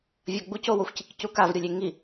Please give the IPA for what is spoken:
vʲʌɡ͡buco woxʷcikcukav ɾʲolʲeŋi

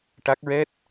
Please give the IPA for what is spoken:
ʈa˦˥k̚ ɹɛ˦˥t̚

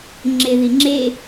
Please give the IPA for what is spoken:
ŋ͡ǁeðiŋ͡ǁe

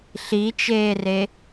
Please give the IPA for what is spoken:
ɬit͡ʃeːre

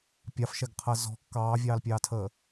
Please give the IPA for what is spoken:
pʲɑfʃɛɡqʰəː zɔ̤ kːɑːvʲɑːlpʲɑːtʰəː

